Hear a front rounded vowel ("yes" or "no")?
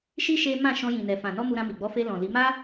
no